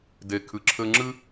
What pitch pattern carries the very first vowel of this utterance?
low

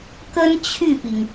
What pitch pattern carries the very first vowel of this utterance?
high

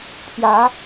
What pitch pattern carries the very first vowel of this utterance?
rising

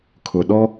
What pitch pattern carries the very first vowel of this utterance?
low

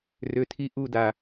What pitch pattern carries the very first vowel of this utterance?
low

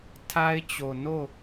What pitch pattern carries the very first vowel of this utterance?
high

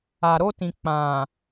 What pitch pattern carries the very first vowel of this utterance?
low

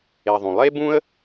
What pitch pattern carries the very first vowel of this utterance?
low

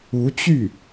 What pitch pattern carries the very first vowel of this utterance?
rising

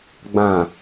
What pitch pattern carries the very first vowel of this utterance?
low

